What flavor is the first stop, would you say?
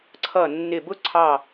click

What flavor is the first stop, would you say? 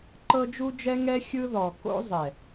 click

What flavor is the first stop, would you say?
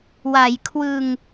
aspirated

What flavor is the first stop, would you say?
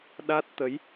implosive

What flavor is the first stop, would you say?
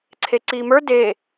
click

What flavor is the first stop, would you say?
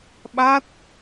implosive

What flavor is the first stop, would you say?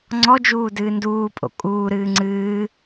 click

